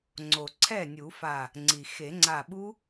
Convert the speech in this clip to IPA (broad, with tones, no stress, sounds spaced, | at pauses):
ŋ͡ǀ o˩ ǀʰ ɛ˥˩ nʲ u˨˩˦ f a˧˩ | ŋ͡ǀ i˩ x e˨˩˦ ŋ͡ǀ a˧˩ ɓ u˦˥